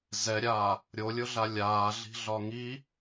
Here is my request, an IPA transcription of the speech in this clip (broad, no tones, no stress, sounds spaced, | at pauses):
z ɛ ɾʲ aː | ɾʲ o lʲ ʊ ɮ a lʲ aː ɮ i̤ ɮ ɒ ŋ i